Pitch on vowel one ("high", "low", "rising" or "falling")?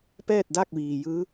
falling